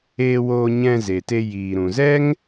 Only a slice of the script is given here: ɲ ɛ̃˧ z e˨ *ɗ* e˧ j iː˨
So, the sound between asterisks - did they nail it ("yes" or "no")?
no